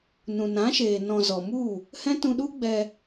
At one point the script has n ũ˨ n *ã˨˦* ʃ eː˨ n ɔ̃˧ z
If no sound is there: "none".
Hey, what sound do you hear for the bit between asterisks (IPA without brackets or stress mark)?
ã˨˦